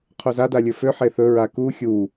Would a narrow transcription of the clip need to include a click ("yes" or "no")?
no